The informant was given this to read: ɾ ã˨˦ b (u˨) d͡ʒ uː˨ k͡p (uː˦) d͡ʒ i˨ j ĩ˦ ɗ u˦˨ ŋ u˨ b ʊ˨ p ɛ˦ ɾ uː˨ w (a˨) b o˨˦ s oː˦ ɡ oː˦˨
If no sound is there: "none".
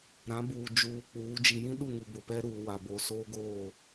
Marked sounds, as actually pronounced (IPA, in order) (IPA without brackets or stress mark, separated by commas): uː˨, uː˨˦, a˨